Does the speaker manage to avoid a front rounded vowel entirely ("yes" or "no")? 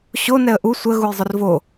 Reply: yes